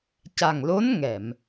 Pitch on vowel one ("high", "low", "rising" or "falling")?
low